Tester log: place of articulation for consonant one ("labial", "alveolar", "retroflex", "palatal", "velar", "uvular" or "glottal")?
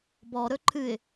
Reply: labial